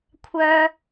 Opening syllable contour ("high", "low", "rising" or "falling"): high